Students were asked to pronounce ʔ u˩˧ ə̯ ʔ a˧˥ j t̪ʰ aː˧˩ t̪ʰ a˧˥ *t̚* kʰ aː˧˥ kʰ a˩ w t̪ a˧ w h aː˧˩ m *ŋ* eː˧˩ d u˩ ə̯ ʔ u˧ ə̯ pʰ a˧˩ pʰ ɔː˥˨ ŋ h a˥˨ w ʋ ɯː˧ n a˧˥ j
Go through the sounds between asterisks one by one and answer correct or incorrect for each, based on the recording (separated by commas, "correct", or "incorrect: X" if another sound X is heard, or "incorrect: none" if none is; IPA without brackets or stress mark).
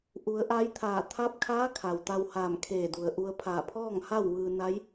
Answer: incorrect: p̚, incorrect: kʰ